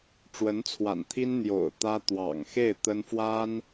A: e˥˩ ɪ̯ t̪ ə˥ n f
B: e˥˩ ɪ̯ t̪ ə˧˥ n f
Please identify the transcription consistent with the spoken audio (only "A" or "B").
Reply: A